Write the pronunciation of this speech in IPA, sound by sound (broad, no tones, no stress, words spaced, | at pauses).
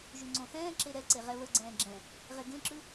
ʒʉŋ͡ǀõθɛ̃ːǁe ɾɛǀe ʁɛβəɡ͡ǀɛ̃ː ɡ͡ǁɛ̃ | ʁeɡẽǁʉ